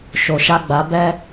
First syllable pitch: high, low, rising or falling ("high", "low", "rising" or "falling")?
low